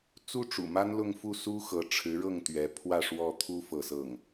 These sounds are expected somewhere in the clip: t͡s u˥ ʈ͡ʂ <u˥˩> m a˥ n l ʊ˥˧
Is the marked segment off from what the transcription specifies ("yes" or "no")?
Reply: yes